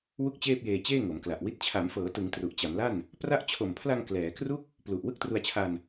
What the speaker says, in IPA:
wu˥˩k̚t͡ɕeː˥˩p̚jeː˧ t͡ɕeː˥˩ŋo˩˦mkla˨˩ʔwi˦˥t̚ t͡ɕʰa˩˦mfɤː˩˦tɯ˩˦ŋ tru˨˩ʔt͡ɕa˩˦mla˥˩n | pra˦˥ʔt͡ɕʰo˨˩mpʰla˧ŋ klɛː˩˦kru˥˩k̚ | plu˨˩ʔ wɯ˥˩k̚tru˧a̯t͡ɕʰa˧n

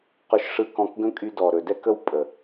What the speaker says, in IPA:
qɵ˧ʃʂɯ˧kɔ̃˧kɡə̃˦ kʼy˧dɔ˨ ɾɵ˨dɛ˦kə˦w pʼə˨

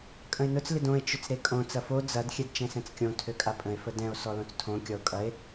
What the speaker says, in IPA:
kʼə̃e̯nʊt͡s lɪdõe̯ t͡ʃʊt͡sɾekʼõ t͡sɐfo d͡zɐd xʲɛdt͡ʃɛ̃sɛ̃t͡skʲõ tʰøkʼapʼə̃e̯ fədɛ̃o̯ sɔlõt͡stʰõ kʲɔo̯kʼɐe̯

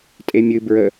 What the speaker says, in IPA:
tʼemʲɨ bɹə

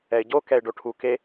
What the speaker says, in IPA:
ɛɪ̯ɟo kɛɪ̯ɖoʈʰu ke

